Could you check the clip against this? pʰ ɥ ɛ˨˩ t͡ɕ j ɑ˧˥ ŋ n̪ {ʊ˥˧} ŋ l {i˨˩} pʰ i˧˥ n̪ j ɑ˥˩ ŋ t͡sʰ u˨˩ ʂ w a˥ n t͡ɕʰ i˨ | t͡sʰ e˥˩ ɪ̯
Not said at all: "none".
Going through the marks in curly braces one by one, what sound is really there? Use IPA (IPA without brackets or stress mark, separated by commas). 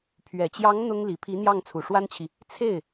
ʊ˥, i˨˩